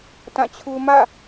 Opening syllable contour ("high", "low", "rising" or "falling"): falling